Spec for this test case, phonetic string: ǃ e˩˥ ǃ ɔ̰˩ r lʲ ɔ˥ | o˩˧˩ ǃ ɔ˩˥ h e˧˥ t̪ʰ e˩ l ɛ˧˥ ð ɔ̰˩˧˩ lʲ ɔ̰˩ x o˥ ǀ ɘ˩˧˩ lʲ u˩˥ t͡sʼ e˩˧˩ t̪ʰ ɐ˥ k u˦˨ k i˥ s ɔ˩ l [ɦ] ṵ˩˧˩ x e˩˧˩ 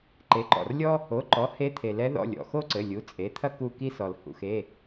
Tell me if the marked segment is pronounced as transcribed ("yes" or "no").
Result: no